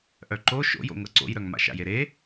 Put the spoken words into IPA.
ʔ œ ǃ o ʃ o̰ j o̰ ŋ ɤ ǀ o̰ j ɾ œ ŋ m a̰ ʃ a̰ j e ɾ e

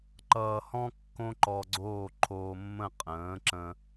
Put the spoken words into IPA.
ǃ ʌː˧ h ɔ̃˥ kː õ˥ ǃ ɔ˧ ɡ͡ǀ oː˥˩ ǃʰ oː˧ mː ə̃˥˩ qʼ ə̃ː˩˥ ǁ ə̃˧

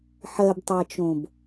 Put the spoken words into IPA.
ħ ɜ b tˤ ɜ t͡ʃ õ b

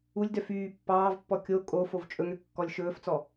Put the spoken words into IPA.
u lʲ d œ f yː pː ɑː v pː ɔ kʲ o kʼ o f o v t͡ʃʼ ɵ ŋ ø kː ɔ lʲ ʃ ɵː f t͡s ɔ

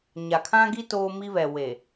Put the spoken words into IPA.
ɲ a˨ kʰ ã˦ ɡ i˦ t oː˦ m i˦ β ɛ˨ w e˨

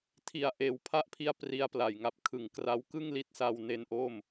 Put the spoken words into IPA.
tʰ i˨˩ a̯ ʔ eː˩˦ w pʰ a˦˥ ʔ pʰ i˧ a̯ p r i˧ a̯ p l a˨˩ j ŋ a˨˩ p̚ kʰ ɯ˩˦ ŋ k r a˦˥ w k ɯ˥˩ ŋ l i˦˥ t̚ s a˧ w n e˦˥ n ʔ o˥˩ m

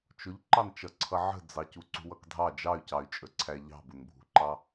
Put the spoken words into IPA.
t͡ʃ ʊ ʎ ǃ ɑ n t͡ʃ ʌ ǀʰ ʌ ʕ ə̤ d͡z ɑ c u ǀ ṳ w ʌ k dʱ ɑ d͡ʒ ɑ y̯ c ɑ y̯ t͡ʃʼ ə ǀʰ æ ʎ ɑ̤ b ʊ n bʱ ṳ ǃ ɑ

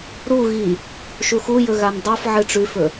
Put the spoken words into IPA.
ɾ u ɣ i | ʃ u x u j ɵ ɣ a n dˤ o f ʕ ɨ ʈ͡ʂ ʉ f ɵ

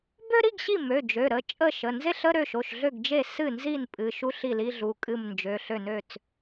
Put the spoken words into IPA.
b ø˥ ɾ i˧˥˧ ɡ ɕ i˥˩ m ø˩˧˩ d͡ʒ ø˩˧˩ ɾ ə˩˧˩ t͡ʃʼ ə˥˩ ʃ ə˩˧˩ n z e˥ ɬ ə˧˥˧ ɾ ø˥˩ ʃ o˩˧˩ ʃ ɮ ø˥˩ ɡ d͡ʒ e˥˩ s ɨ˥˩ n z i˥˩ n pʼ ɨ˩˧˩ ʃ u˥ ɬ i˥˩ l i˧˥˧ ɮ u˩˧˩ kʼ ɨ˥˩ m n d͡ʒ ø˩˧˩ ɬ ø˥˩ n ø˥˩ t͡s

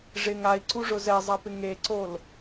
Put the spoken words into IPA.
ʐ ɪ ŋ a i̯ ǀ u ʐ ʊ z ɛ zˤ a p ɪ ŋ e ǀ o l

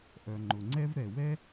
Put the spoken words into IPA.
ʔ œ˩ ŋ͡ǃ ʊ˩ ŋ͡ǀ ɛ˥ v ɾ ɛ˩ w ɛ˥

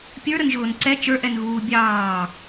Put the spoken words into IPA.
pʲ ə˞ ɾ ə n ʒ ʊː n ǀ ɛ t͡ʃ ə˞ ʔ ɛ n ɣ uː bʲ ɑː

